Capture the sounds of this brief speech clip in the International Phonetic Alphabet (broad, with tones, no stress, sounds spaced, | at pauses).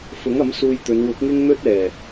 f ʊ˨˥ ŋ ɐ˨˥ m s uː˧ j t̪ ɵ˨˧ n w ʊ˨˥ k̚ ŋ ɪ˥ ŋ n̪ ɵ˥ t̚ ɛː˨˩